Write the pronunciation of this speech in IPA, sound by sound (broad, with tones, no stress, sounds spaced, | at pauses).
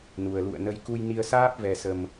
n u˨˩ ə̯ l ṵ˧˨ ə̯ n ə˧ j k u˧ j n i˧ ə̯ s aː˦˥ p̚ v ɛ˨˩ s ə˨˩ m